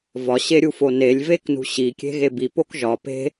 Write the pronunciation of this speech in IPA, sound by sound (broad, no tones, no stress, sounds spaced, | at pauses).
v ɒ ɕ e ɾʲ u f o n e lʲ v e k n ṳ ɕ i kʲ e̤ ɣ e b i p o k ʒ ɒ p e̤